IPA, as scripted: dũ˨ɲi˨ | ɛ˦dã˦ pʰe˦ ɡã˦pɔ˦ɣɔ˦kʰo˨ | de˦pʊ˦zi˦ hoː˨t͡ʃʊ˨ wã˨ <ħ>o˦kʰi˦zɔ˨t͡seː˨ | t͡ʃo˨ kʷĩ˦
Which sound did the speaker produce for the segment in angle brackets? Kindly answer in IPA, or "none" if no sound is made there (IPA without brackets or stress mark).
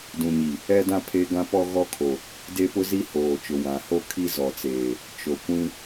h